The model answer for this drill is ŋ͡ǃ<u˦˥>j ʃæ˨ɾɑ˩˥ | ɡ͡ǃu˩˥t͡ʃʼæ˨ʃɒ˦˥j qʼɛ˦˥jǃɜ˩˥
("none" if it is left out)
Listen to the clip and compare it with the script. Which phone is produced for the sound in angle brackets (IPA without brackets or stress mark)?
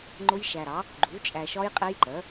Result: ʊ˦˥